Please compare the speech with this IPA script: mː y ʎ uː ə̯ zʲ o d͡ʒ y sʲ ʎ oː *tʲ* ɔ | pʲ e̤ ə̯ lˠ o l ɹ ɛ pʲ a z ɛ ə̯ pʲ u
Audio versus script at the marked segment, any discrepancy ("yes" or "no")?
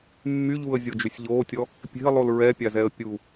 no